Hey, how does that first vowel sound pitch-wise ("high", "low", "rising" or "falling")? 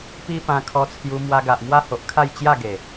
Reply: high